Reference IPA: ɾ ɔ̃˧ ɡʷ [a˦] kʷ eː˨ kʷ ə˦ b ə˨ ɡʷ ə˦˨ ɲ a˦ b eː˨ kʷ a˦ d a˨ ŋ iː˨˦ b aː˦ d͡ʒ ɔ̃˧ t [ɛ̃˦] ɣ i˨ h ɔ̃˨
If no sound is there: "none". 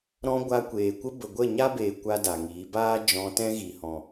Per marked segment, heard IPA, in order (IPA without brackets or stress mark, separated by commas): a˧, ɛ̃˦